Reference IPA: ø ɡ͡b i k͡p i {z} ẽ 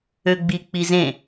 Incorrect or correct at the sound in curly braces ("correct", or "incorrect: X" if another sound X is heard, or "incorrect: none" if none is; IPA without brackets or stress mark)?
correct